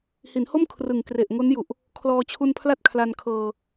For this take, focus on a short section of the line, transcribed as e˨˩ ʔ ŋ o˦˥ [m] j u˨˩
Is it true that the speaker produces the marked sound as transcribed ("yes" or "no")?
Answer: no